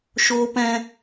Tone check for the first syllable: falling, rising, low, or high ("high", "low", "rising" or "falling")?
high